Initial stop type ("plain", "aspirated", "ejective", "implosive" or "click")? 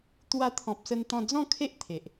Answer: plain